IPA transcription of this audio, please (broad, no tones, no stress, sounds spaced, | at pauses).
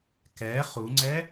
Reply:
k ɛ χ u ŋ͡ǀ ɛ